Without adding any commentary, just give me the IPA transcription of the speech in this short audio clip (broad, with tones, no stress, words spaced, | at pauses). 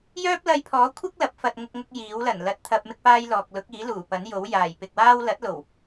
jœː˥p̚lɐ˧jpʰɔː˨˥kʷʰɪ˥k̚ lɐ˨˥p̚fɐ˧t̚ ŋʊ˧k̚ŋʊ˧k̚ jiː˨˥wlɐ˨˩n lɐ˧t̚t̪ʰɐ˧p̚ mɪ˥k̚paː˥jlɔː˨k̚ lʊ˨˥k̚iː˨˥ luː˨˩pɐ˨˥njo˨˥w jaː˨˩jpɪ˨k̚waː˥w lɐ˨˥t̚lo˨˩w